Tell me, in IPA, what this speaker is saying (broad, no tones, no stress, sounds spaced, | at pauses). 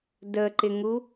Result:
d ə ǃ ɪ ŋ u